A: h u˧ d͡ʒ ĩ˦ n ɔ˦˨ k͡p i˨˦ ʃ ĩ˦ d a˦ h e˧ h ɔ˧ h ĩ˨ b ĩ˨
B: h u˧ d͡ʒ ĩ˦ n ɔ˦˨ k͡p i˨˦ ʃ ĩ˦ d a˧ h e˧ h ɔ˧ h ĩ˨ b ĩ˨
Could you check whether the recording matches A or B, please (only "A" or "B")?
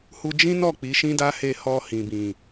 A